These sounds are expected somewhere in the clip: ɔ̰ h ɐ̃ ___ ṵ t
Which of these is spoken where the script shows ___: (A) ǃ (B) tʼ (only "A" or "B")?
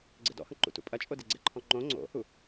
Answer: A